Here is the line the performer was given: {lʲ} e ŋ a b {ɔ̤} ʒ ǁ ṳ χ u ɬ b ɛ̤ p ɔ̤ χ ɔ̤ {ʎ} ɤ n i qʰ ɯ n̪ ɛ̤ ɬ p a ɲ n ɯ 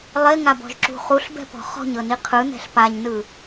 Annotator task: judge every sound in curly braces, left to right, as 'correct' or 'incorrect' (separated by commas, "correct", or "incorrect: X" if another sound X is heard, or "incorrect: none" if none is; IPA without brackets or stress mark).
incorrect: lˠ, correct, incorrect: ɲ